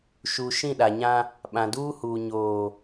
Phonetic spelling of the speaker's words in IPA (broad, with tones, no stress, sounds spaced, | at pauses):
ʃ u˨ ʃ ĩ˦˨ ɗ a˨ ɲ ã˦ | ɓ ã˨ d uː˦ h uː˨ ɲ oː˨